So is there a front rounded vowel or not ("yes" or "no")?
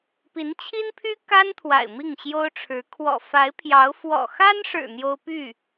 yes